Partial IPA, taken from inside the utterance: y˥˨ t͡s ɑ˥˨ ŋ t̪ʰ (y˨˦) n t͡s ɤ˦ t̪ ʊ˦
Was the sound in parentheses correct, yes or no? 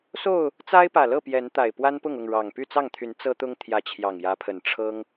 yes